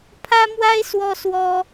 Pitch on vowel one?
high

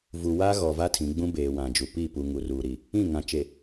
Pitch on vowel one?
low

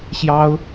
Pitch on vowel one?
high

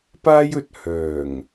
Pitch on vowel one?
high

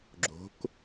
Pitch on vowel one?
rising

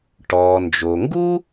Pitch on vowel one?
low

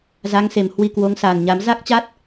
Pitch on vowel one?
rising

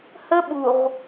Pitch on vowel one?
high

